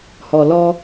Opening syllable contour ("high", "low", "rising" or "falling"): low